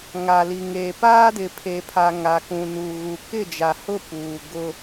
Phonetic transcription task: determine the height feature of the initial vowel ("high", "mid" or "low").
low